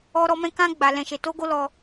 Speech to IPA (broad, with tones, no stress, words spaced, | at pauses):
ɔ˦ɾɔ˦mɛ̃˦ kã˦ɡ͡ba˧ lɛ̃˧ʃe˧to˦ɡo˦ lɔ˧